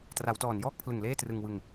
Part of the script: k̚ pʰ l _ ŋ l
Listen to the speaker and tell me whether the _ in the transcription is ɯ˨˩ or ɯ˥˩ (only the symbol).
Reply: ɯ˨˩